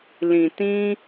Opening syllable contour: low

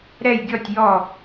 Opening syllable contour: falling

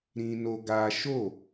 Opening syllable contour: high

